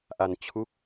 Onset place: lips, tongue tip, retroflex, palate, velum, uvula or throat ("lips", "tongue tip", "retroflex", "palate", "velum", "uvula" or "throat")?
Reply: throat